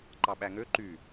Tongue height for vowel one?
low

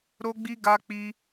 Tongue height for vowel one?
mid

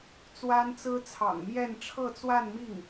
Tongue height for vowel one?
low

